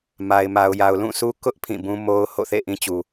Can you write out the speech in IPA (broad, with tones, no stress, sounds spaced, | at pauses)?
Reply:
m a˨ ɪ̯ m a˨ ʊ̯ j a˨ ʊ̯ l ũ˦˨ sʰ u˦ k ʊ˦ ʔ pʰ ĩ˦˨ b ũ˦ m o˦ ʊ̯ h o̰˦˨ θ ḛ˦˨ ʔ ĩ˦ t͡ɕ u˨